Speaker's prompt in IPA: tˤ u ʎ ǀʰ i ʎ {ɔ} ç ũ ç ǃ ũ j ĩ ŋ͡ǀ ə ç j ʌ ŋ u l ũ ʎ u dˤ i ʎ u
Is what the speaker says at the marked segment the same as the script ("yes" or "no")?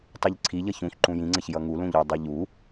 no